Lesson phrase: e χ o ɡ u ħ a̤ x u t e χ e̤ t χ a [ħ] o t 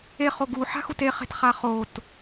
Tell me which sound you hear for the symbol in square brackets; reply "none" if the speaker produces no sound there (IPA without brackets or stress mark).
χ